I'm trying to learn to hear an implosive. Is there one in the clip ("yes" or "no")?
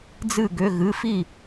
no